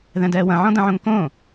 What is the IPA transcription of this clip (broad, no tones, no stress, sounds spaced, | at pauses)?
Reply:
ð ɛ̃ d ɛː w ɐ̃ ʕ ɔ̃ d ɐ̃ ʕ õ ŋ k õ